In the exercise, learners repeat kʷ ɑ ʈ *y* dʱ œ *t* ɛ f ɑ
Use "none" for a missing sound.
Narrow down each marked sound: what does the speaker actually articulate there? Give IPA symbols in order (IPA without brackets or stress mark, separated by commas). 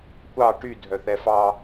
y, θ